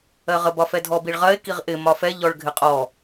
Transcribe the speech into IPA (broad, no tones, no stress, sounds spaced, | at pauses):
ɜ ʁ ə b ɒ f ɛ dʱ ɔ b i ɭ ʁ ɜ e̯ k i ʁ ʔ ɪ m ɒ f ɛ ʎ ɔ ɭ ɡʱ ɪ qʼ ɔ